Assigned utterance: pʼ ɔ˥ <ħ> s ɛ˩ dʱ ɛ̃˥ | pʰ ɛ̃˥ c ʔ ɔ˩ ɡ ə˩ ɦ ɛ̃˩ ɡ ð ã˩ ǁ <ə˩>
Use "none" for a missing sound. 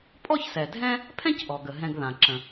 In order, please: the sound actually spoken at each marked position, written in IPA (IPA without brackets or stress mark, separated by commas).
ç, ə̃˩